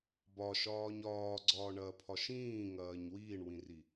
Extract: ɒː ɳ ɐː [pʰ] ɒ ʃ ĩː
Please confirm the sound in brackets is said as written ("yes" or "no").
yes